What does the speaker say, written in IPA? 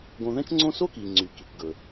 ɡ õ˧ ð ɛ̃˥ t͡ʃ ŋ͡ǀ õ˥ s o˥ k i˩ ŋ͡ǀ y˩ k i˩ kʷ ɡ ɵ˩

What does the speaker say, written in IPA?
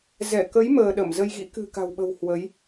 z ɛ˧˩ k ə˨˦ j m əː˧ ɗ ə˧˩ m z ə˧ j ɣ ḭ˧˥ k ɨ̤˨˩ k a̤˨˩ w ɓ ə̤˨˩ w h w ə˨˦ j

